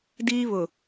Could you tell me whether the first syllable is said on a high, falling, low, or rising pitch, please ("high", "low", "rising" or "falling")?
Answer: high